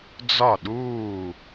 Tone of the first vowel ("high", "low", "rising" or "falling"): falling